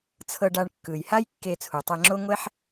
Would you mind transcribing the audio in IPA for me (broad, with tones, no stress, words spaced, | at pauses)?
t͡sʰɤ˧ɖa˧ɳ kːɯ˩jha˥j kːe˧t͡sʰu˩tˤɛ˧ŋ͡ǁo˥ ŋʷɛ˥ħ